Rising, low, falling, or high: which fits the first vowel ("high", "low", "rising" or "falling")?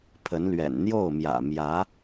rising